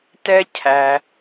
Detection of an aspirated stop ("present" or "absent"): present